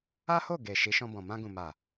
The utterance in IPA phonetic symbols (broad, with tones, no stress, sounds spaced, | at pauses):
a˦ h o˦˨ ɡ e˨ ʃ i˨˦ ʃ ɔ̃˧ b ɔ̃˨ m ã˧ ɡ ũ˨ m a˨